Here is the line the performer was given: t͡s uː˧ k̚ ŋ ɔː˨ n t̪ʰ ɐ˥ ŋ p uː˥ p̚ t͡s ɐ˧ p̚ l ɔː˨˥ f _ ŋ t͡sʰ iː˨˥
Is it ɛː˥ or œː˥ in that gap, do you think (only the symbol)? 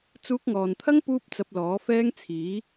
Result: ɛː˥